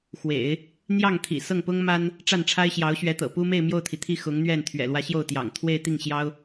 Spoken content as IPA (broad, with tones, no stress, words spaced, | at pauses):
xwḛ˨˩˦ɪ̯ | n̪jɑ˥˩ŋt̪ʰḭ˨˩ sɤ˥˩ŋpʊ˥ŋma˥n | ʈ͡ʂa˥˩nʈ͡ʂʰa˥ɪ̯ɕjɑ˧˥ʊ̯ɕɥɛ˧˥ t̪ɤ̰˨˩pu˥me˥˧ɪ̯ mjo˥˩ʊ̯t̪ʰi˩t̪ʰi˥˩ xʊ˧˥ŋn̪ɥɛ˥˩n t̪ʰɥɛ̰˨˩lwä˧˥ ɕjo˥˩ʊ̯t̪jɑ̰˨˩ŋ t̪ʰwe˥˧ɪ̯t̪i˥˩ŋɕjɑ˥ʊ̯